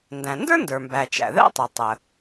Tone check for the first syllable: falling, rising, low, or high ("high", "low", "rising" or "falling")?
low